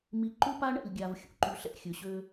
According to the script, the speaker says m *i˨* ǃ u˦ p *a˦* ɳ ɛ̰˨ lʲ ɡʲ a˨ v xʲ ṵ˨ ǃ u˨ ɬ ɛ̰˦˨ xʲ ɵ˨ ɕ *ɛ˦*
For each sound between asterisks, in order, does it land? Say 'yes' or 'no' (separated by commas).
yes, yes, no